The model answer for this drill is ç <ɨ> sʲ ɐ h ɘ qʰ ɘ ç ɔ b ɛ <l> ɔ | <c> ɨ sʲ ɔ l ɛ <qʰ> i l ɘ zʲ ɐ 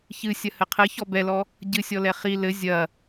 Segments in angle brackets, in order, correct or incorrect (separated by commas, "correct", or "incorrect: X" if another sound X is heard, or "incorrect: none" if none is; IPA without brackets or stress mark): correct, correct, incorrect: ɟ, incorrect: χ